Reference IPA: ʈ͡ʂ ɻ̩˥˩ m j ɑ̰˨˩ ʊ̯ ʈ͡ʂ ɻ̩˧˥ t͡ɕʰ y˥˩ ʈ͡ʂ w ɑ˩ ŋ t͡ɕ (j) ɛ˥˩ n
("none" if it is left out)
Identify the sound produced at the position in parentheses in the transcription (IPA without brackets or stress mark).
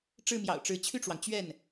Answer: ɥ